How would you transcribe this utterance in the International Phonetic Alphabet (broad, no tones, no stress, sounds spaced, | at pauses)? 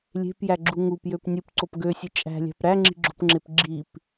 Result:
lʲ e̤ p j æ ɡ͡ǁ u ŋ u p j ø p nʲ ɯ p ǀ o p ɡ ø sʲ ɯ t͡ʃʼ æ̤ lʲ æ̤ p ɾ æ ŋ͡ǁ i̤ ɡ͡ǁ o̤ p ŋ͡ǁ e p ɡ͡ǁ i p